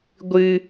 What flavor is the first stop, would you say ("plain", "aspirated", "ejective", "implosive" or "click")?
plain